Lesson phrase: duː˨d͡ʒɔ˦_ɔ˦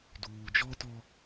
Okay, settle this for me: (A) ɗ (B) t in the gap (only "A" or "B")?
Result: B